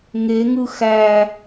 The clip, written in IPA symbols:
ŋ e ŋ ɯ x æ

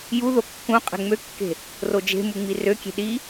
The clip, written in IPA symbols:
j u ð o kː ũ qʼ e̤ ŋ͡m ø kː e̤ | r o d͡ʒ e̤ m u ŋ͡m i r ø kʲ e̤ ɗ i

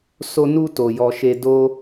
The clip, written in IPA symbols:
s o˧ n u˧ t o˨ j ɔ˨ ʃ e˧ d o˦

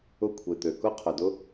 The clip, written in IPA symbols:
ʊ˧ kʷʰ e˨ t̪ ø˨ k ʊ˦ qʰ ʊ˨ d ʊ˦

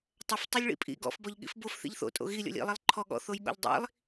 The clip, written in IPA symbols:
tˤ ɐ f tˤ o lʲ ɭ ḭ pʼ ḭ ɡ ɔ̰ f b ɔ ʎ ɠ ḭ f b o f θ ḭ ʎ θ o̰ tʼ o̰ ɣ i lʲ ɔ̰ lʲ ḭ lˠ i lˠ ǃʰ ɔ ɠ ɔ̰ θ o j ɠ ɔ̰ ʎ dˤ ḭ lˠ

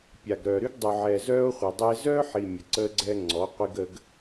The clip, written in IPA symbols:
pʲ a˨ ɡ ɾ œː˨ ɾ y˦ ɡ dˤ u˨ ʕ ɛː˨ z œː˦ o̯ χʷ e˨ dˤ ɛ˦ e̯ z œː˦ ħ i˨ mʲ ə˨ ǀ əː˦ ɡ͡ǀ ɛː˦ ŋ͡ǀ ɔ˨˦ qʷ i˦ ɡ ə˦ ɡ

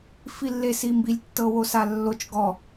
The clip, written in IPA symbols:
f i lː e s i m b i lʲ tː ɤ w o s a lː o t͡ʃ ɡ ɔ

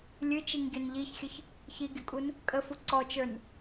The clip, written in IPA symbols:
lʲ ɨ t͡ʃ i ŋ ɟ ø n ʎ i ç xʲ ə ç | ç i ɡʲ ʊ kʼ u n | kʼ ə f u ǀ ɔ t͡ʃ ə˞ n

